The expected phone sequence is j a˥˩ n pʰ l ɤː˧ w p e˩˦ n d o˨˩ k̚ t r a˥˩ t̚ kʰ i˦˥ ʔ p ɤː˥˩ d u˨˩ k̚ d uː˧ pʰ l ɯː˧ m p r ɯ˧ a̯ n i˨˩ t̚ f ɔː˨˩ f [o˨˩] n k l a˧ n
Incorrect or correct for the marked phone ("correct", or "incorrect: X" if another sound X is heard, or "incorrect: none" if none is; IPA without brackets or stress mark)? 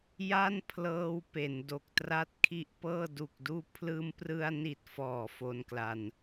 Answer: incorrect: o˧